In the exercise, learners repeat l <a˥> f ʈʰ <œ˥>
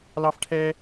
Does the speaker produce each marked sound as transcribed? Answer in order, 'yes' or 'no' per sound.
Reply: no, no

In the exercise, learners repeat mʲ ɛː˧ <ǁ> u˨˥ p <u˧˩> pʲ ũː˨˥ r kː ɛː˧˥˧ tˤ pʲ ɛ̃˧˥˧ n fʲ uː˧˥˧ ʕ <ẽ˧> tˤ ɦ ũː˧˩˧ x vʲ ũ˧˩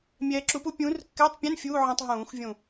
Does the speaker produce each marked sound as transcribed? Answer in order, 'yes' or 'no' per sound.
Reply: yes, no, no

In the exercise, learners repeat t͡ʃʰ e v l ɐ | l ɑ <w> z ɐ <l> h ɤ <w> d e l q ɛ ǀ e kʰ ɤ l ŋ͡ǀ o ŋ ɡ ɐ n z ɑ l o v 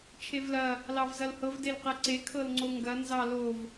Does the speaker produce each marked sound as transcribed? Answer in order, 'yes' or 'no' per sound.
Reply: no, yes, no

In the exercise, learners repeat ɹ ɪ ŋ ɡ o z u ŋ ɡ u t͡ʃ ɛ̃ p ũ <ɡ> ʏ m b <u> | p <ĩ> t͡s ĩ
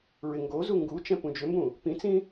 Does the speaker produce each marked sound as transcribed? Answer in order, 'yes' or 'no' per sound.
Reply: no, no, yes

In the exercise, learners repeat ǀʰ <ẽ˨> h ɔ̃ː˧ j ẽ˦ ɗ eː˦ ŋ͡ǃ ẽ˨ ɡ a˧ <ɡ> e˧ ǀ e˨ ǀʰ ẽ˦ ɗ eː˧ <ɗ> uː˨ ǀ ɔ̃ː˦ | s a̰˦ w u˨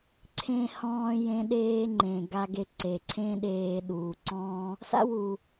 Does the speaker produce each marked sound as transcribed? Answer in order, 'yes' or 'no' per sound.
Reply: no, yes, yes

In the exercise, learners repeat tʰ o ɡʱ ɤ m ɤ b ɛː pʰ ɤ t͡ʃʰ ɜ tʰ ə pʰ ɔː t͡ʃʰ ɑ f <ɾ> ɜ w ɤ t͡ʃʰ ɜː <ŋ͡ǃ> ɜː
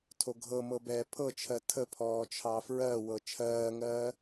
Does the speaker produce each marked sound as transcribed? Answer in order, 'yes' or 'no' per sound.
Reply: no, no

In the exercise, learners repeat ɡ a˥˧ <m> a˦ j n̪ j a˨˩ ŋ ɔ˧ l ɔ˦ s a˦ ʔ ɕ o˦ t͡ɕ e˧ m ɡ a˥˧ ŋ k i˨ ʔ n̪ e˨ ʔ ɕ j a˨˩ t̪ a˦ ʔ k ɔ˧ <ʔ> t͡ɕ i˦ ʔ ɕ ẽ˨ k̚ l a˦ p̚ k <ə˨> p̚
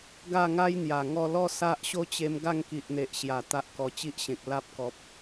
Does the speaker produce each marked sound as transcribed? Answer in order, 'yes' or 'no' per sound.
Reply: no, no, no

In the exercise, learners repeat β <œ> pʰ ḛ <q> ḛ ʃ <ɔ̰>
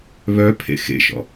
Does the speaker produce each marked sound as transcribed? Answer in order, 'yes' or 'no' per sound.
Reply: yes, no, yes

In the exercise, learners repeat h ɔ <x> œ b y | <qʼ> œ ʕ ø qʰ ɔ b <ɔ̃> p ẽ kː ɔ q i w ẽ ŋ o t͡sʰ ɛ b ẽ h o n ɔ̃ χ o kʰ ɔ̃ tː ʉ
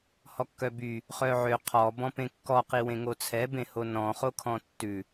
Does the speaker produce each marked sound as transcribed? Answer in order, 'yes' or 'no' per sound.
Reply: no, no, yes

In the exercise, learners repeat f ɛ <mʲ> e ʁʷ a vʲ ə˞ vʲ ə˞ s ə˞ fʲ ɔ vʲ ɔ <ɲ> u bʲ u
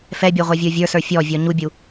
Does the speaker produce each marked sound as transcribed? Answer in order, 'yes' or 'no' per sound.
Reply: no, yes

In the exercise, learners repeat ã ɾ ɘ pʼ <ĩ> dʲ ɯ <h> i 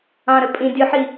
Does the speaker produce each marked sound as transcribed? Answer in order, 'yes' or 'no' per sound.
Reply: yes, no

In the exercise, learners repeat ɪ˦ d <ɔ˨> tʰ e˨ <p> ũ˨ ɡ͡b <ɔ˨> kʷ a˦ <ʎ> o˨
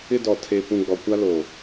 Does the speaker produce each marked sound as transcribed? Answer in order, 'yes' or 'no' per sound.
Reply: yes, yes, yes, no

